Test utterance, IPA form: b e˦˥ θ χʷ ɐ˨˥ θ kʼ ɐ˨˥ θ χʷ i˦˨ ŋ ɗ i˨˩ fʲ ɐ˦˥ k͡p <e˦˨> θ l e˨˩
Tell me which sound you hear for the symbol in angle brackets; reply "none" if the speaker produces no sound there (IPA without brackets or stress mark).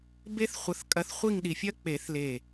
e˨˩˦